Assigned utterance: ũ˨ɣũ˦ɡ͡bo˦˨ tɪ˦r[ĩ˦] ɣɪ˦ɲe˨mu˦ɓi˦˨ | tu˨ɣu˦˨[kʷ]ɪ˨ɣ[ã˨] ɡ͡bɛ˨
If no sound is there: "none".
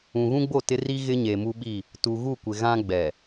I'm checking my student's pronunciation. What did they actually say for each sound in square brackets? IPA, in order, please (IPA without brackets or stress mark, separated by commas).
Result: i˦, kʷ, ã˦